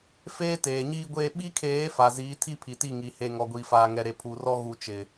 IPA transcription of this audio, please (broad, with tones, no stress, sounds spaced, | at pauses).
f eː˦ t eː˨ ɲ iː˦ ɡʷ eː˦ ɓ i˦ kʰ eː˨˦ f a˨ z iː˨˦ tʰ i˦ pʰ i˨ t i˦˨ ŋ i˨ h e˨ ŋ ɔ˨ ɡʷ iː˨ f aː˨ ŋ ɛ˨ ɾ e˨ pʰ u˨ r ɔ˦ ɣ u˨ t͡ʃ ɪ˨